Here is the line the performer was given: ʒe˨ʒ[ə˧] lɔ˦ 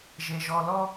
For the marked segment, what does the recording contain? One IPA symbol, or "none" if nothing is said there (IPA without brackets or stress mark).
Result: ɔ˧